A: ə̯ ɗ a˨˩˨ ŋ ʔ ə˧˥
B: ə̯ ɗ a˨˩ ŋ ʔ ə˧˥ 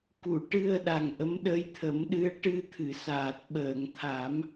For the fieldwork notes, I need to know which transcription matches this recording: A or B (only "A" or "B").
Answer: B